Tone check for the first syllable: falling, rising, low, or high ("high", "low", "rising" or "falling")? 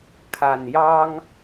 low